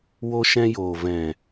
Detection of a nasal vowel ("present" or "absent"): present